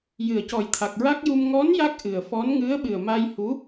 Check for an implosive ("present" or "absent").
present